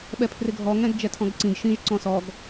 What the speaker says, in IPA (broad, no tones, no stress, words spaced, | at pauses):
ɓɛpʰrɪɡʱɔ ŋɛ̃ɡd͡ʒɛtʰɔ̃ɡǀĩɡ ʃĩʒǀɔ̃ sɔɡ